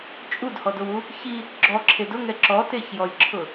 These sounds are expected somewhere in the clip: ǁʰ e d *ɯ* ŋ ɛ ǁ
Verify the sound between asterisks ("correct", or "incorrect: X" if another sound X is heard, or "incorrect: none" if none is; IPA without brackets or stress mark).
incorrect: ʊ